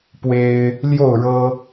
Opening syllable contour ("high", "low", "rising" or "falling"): high